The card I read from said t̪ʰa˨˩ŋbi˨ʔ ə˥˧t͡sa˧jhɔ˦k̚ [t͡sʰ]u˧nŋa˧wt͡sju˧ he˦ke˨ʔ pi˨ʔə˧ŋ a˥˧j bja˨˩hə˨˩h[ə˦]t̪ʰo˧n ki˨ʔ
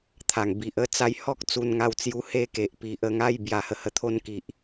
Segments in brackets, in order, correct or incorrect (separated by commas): incorrect, incorrect